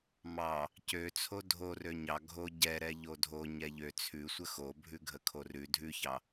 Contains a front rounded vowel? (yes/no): yes